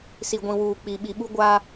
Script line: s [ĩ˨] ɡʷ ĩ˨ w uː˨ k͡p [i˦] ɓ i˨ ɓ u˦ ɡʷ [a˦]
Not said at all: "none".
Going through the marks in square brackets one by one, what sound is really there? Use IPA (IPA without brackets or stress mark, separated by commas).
i˨, i˨, a˦